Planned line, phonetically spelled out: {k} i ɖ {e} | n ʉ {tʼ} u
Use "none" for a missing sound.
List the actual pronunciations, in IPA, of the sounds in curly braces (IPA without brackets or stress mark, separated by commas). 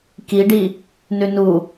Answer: k, i, n